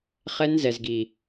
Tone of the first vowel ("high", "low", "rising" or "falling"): high